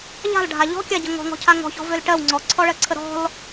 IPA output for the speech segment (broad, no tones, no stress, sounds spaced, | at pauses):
ʎ a̤ l ɖʱ a ʎ ɔ̤ kʲ a ɟ ə ŋ ɔ̤ ŋ ɔ̤ cʰ a ŋ ɔ̤ ç ɔ̤ v ø l ʈ ɜ w ŋ͡ǀ ɔ ǀʰ ɔ ɭ ɜ ǀʰ ə ɾ ɔ̤ l